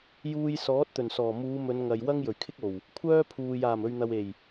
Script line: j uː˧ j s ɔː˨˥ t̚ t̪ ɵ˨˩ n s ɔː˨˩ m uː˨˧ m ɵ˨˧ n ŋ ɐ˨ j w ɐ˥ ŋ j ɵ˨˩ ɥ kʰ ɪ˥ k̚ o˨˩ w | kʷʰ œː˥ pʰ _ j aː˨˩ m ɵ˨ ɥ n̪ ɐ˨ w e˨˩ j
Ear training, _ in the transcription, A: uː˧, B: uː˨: B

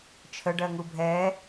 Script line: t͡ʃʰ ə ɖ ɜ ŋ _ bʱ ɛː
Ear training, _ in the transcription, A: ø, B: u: B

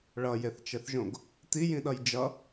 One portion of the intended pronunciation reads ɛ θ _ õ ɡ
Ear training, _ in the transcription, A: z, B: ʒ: B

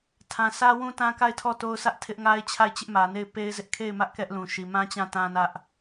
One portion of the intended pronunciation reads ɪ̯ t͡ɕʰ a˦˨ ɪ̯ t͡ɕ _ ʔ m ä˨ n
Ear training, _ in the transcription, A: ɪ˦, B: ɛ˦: A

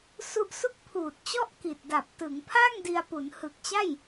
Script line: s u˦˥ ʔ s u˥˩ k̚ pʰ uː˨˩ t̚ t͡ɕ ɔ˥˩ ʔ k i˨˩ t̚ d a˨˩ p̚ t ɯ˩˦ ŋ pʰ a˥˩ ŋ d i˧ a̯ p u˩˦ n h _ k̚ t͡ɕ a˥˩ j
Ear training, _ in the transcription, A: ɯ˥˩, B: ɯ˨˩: B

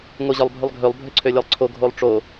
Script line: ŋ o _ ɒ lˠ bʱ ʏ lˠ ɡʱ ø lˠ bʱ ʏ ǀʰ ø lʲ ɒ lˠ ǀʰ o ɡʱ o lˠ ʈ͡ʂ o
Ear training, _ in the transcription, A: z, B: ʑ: B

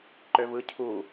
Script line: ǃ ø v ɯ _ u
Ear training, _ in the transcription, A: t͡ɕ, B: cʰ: B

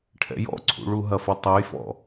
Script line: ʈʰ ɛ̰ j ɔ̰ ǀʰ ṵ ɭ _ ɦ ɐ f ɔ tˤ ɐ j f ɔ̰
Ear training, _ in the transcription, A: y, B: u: B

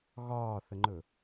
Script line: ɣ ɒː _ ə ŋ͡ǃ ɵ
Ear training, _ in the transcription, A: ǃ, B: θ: B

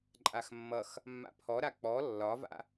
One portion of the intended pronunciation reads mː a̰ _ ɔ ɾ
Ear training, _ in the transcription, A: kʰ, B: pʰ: B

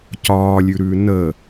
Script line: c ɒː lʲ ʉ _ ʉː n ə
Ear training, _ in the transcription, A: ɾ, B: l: A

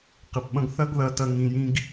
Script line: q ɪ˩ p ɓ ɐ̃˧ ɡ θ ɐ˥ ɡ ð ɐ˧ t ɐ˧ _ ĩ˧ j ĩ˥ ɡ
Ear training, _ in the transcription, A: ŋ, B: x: A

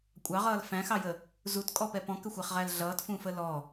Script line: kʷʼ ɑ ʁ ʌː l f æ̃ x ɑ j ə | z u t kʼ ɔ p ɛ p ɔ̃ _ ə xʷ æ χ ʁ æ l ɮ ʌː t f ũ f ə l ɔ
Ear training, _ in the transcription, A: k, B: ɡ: A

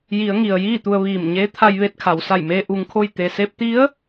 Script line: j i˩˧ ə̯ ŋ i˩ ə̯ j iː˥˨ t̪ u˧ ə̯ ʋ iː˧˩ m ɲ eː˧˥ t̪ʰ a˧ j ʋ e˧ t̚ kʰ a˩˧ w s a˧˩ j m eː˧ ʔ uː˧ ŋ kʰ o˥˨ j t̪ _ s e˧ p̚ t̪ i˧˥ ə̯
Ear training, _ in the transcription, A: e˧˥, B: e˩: B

